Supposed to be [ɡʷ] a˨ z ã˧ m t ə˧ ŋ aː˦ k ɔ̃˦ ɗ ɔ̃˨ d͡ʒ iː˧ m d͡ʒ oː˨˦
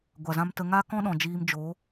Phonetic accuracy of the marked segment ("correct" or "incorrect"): correct